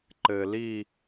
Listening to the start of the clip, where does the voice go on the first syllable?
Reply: low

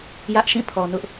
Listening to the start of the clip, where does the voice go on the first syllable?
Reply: high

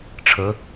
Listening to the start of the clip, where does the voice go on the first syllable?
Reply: rising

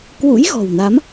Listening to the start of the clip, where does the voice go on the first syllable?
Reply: rising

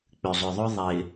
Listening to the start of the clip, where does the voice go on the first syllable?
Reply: low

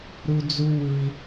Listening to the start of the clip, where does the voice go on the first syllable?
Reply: high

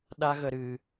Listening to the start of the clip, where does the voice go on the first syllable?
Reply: high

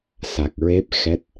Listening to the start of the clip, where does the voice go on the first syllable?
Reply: low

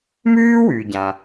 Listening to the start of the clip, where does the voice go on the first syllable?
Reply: high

